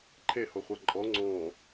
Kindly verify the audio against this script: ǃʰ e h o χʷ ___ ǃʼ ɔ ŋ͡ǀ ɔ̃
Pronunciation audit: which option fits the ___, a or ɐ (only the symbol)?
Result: a